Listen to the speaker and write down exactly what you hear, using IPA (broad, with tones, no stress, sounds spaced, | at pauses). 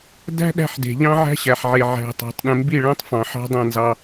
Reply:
d æ̤˦ ɗ æ̤˦ ħ d e̤˨ ʎ ɑ̃˦ ʕ æ̤˦ ɕ æ˨ ħ ʕ e˨ ʕ æ̤˨ tˤ ɑ̤˨ tˤ ɗ ẽ˨ m b i˦˨ ɭ æ̃˦ tˤ f ɑ̃˨ ħ ɑ̤˦ dˤ æ̃˦˨ n z ɑ˦